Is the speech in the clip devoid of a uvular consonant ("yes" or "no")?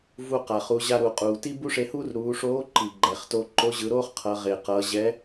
no